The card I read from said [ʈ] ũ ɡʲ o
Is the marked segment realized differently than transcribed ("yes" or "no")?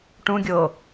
no